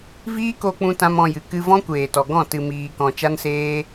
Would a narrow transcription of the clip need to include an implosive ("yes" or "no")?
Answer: no